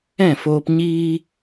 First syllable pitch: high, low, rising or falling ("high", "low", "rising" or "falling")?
falling